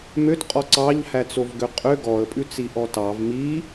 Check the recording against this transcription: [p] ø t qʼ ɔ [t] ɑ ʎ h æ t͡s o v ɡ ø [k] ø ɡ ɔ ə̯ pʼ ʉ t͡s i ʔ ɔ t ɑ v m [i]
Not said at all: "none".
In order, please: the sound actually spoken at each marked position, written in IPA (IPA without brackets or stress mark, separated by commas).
m, ǀ, qʼ, i